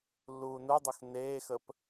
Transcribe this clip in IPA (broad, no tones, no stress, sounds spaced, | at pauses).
lː uː n u dˤ u x n eː x ə p